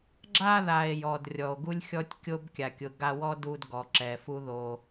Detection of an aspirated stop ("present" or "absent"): absent